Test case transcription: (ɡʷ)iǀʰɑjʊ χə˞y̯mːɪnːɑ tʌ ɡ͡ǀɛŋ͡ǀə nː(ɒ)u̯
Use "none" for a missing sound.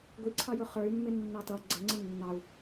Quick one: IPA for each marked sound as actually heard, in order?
ɡʷ, ɑ

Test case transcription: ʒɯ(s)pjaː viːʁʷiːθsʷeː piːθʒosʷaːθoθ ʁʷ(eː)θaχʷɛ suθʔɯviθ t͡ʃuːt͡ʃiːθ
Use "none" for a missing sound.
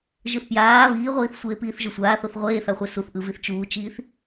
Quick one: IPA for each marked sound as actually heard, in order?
θ, eː

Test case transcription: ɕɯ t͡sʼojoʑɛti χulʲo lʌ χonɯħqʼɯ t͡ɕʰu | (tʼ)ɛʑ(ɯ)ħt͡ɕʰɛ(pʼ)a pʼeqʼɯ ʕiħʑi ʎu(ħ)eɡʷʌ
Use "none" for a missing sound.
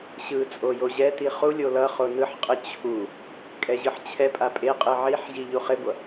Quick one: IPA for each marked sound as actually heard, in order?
kʼ, ɯ, pʼ, χ

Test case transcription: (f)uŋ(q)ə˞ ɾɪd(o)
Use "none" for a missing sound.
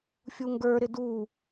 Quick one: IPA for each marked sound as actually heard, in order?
fʲ, ɡ, u

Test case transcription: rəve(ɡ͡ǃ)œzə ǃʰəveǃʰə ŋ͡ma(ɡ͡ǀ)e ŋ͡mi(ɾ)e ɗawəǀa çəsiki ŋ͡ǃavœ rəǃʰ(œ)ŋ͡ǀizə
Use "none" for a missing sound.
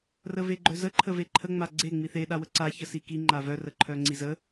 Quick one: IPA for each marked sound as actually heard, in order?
ɡ͡ǃ, ɡ͡ǀ, θ, œ

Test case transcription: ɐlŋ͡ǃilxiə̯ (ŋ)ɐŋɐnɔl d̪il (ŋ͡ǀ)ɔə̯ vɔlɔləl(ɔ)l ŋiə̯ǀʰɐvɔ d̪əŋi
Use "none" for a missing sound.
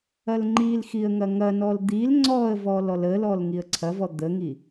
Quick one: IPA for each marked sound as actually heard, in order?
ŋ, ŋ͡ǀ, ɔ

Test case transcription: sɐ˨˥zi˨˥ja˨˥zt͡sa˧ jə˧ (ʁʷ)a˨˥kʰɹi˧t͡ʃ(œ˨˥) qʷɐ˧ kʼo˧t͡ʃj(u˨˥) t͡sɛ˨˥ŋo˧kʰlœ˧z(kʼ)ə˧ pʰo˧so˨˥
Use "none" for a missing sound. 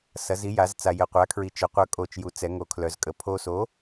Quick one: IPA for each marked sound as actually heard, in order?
qʷ, œ˨˥, u˨˥, kʼ

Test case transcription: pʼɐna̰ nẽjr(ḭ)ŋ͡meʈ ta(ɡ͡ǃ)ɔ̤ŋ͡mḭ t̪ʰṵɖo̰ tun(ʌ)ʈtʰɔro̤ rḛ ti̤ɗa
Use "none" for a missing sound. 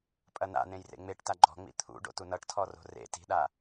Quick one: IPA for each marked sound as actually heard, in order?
ḛ, ɡ͡ǃ, ʌ

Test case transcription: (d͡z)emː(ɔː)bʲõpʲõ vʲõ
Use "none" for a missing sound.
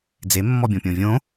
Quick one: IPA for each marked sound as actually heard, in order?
d͡z, ɔ

